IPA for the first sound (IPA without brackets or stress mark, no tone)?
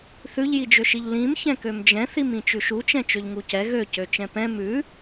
θ